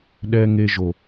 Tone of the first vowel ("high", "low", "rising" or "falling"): low